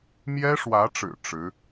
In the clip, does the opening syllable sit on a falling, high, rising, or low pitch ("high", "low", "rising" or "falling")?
high